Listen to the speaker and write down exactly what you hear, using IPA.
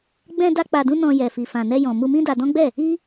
ɡ͡b ɛ̃˧ d a˧ k͡p a˨ d ũ˧ n ɔ̃˧ j ɛ˨ f i˨ f ã˨ n ɛ˧ j ɔ̃˨ m u˧ m ĩ˦ d a˧ d ɔ̃˦ ɡ͡b ɛ˦˨ | i˦

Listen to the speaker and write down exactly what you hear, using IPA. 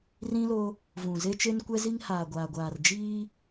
r ĩ˦ l o˦ | v ũ˨ z e˦ t͡ʃ e˦ n kʷ ɛ˦ z i˦ ŋ h aː˨ ɡʷ aː˨ ɡʷ aː˨ r d͡ʒ iː˦

